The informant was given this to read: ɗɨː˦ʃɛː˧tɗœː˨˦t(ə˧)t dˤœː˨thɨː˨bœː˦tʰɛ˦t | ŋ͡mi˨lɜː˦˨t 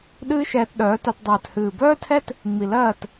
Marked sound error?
yes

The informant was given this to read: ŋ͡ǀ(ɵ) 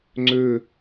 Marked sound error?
no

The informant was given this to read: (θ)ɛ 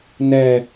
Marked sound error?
yes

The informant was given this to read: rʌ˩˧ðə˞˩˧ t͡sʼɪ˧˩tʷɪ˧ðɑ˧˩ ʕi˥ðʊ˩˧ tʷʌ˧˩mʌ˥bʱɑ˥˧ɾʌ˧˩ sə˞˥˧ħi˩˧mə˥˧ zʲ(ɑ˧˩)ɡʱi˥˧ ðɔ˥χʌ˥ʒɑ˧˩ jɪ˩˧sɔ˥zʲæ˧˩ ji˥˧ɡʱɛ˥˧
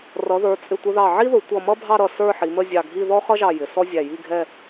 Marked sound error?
no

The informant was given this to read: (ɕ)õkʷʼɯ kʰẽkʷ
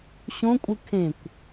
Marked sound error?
no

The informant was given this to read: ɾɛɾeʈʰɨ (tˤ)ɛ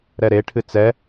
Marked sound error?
yes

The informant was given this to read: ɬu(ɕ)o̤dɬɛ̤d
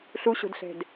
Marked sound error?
no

